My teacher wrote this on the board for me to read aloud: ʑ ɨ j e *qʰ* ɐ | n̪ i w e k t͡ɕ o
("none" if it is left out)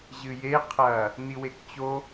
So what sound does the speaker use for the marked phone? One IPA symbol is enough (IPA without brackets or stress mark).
qʰ